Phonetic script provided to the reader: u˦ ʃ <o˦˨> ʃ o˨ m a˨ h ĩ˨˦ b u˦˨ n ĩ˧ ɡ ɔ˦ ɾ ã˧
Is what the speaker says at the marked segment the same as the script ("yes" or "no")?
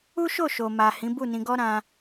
yes